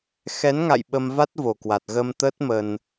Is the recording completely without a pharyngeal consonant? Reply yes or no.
yes